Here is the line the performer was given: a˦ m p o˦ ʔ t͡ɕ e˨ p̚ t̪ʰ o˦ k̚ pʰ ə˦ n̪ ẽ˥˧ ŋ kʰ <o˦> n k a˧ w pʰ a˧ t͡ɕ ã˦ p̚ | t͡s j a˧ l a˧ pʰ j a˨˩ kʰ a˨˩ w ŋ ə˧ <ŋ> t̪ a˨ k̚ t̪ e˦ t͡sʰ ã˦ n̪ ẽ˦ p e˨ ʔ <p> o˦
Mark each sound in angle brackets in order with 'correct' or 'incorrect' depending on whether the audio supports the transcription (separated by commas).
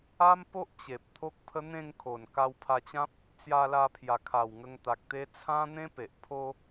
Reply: incorrect, correct, incorrect